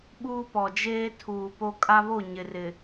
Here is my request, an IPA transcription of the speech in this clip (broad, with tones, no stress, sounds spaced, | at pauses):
ɓ uː˦ p ɔ˨ d͡ʒ eː˦ tʰ uː˨ p o˦ kʼ a˦ β o˦˨ ɲ ɪ˨ r ɪ˨